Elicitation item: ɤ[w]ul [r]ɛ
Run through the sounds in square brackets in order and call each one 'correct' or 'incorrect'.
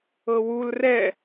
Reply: correct, correct

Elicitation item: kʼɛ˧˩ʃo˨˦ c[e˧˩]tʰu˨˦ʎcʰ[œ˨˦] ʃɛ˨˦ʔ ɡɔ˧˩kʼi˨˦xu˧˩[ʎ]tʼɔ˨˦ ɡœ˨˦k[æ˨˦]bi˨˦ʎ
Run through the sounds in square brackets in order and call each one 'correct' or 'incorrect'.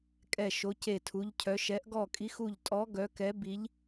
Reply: correct, correct, correct, incorrect: ɛ˨˦

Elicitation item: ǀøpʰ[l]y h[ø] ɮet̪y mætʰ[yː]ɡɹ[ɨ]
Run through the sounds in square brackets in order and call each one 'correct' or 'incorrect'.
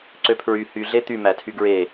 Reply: incorrect: ɹ, incorrect: y, incorrect: y, incorrect: e

